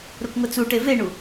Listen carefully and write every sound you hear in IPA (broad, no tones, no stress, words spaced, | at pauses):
ɾʊkŋʊt͡suʈe veɳu